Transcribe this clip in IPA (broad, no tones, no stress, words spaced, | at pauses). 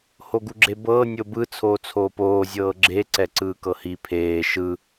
hoɡuɡ͡ǁebɤː nʲobɯ t͡sʰoːt͡sʰoːpoː zʲɤːɡ͡ǁe ǀɛǀɯːkɤhi pʰeː ʃɯ